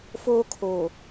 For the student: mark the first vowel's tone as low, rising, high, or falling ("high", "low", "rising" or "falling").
high